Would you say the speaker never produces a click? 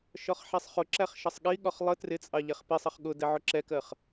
no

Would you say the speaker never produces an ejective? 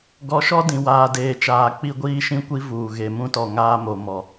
yes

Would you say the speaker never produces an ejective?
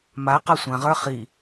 yes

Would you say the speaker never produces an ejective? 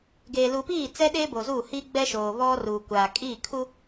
no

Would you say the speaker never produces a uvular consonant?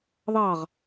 no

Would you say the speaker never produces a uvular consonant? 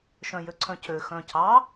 yes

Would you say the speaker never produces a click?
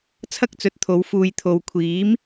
yes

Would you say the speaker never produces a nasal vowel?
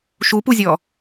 yes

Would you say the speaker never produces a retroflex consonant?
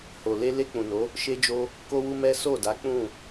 yes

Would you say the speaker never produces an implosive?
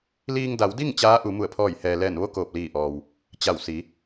yes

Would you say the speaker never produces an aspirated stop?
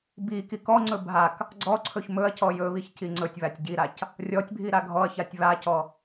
no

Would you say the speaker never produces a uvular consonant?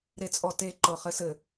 no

